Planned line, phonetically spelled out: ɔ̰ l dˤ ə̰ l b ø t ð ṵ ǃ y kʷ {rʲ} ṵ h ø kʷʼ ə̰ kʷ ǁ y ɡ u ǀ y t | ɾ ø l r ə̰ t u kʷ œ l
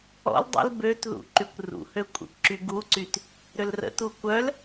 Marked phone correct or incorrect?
incorrect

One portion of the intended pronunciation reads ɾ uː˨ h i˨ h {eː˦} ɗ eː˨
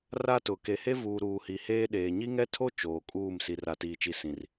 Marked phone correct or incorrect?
correct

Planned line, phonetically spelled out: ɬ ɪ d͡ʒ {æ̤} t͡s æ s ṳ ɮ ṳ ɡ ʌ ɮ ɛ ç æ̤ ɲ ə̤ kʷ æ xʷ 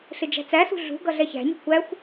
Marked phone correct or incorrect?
correct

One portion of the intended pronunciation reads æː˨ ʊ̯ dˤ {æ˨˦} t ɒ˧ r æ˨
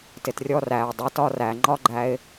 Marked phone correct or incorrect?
correct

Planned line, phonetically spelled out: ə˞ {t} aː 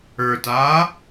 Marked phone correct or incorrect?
correct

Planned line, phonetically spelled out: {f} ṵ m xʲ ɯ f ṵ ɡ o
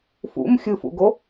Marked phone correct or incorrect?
correct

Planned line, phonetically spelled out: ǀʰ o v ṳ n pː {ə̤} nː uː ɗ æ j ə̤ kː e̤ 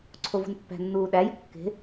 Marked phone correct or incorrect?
incorrect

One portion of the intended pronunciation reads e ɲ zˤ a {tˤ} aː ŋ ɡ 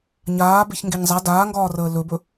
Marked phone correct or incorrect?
incorrect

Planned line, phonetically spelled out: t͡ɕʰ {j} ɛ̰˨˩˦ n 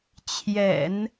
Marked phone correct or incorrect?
correct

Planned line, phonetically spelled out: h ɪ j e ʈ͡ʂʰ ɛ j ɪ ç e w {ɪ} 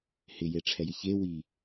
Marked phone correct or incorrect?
incorrect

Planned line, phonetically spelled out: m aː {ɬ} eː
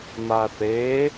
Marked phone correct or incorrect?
incorrect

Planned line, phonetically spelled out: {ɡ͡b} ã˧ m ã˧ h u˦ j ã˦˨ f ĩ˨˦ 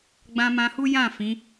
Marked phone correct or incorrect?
correct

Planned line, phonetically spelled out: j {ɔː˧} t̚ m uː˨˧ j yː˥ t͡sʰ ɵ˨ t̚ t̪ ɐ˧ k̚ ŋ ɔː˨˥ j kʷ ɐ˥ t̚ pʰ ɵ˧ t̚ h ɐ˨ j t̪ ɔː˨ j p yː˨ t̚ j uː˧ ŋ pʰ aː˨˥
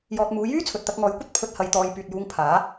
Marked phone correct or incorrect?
correct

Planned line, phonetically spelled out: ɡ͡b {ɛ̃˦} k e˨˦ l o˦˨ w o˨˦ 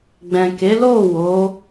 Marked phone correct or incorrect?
incorrect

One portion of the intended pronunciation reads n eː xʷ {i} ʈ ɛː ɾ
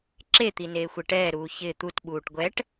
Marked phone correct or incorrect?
incorrect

